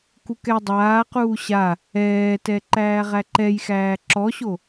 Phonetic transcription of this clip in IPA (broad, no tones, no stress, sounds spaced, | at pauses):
k u k ɛ dˤ aː q uː ɕ a | ɛː t ɛ ǃ æː ʁ æ ǃ ɛ j x æː ǁ ɔ ɕ o